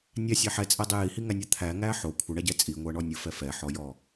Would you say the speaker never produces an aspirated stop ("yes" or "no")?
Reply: no